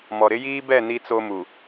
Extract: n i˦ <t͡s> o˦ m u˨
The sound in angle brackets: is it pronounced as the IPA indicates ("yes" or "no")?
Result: yes